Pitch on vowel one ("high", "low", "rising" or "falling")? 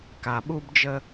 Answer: low